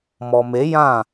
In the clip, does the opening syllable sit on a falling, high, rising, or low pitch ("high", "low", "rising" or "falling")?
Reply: low